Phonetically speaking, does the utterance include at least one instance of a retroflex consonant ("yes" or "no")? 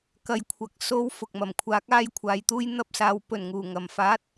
no